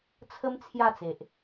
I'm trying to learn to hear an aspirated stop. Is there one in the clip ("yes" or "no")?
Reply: yes